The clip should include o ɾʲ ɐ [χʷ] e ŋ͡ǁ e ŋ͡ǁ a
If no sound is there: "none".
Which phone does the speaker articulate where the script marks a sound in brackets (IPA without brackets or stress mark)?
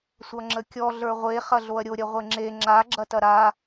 ʁʷ